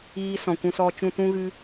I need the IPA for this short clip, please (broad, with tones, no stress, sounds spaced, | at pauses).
iː˧ s ɔ̃˨ kʷ ũ˧ s ɔ˧ t͡ʃ ũ˧ t ũ˦ ɣ ɨ˦